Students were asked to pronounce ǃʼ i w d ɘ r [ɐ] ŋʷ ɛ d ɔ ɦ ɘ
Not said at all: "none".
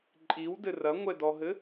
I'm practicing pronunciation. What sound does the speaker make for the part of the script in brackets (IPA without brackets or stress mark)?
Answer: ɐ